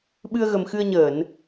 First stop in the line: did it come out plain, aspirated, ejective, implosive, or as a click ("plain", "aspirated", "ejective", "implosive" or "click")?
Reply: implosive